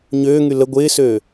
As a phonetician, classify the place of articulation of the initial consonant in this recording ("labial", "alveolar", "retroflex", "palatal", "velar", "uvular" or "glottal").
palatal